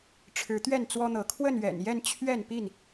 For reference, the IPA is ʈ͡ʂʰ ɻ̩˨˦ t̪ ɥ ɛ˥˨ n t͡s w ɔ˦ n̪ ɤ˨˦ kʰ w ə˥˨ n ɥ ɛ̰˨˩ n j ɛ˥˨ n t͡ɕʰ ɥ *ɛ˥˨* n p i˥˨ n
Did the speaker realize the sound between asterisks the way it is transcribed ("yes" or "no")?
yes